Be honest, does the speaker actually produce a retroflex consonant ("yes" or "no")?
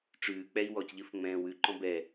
yes